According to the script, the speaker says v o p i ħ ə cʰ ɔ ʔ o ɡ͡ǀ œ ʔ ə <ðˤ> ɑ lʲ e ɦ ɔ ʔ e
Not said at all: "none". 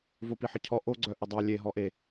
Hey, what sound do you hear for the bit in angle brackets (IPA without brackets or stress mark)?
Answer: dˤ